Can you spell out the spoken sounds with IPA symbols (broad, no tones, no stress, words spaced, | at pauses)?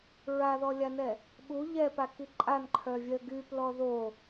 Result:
ɹaðɔlʲanɛ | ɓu ʎɛpaki ǃʼanǃʰœvʲœ ɡyplɔ ðo